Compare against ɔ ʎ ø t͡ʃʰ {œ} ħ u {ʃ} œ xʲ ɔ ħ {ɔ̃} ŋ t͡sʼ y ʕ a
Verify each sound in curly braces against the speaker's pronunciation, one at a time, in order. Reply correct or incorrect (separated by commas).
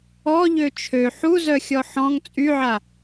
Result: incorrect, incorrect, correct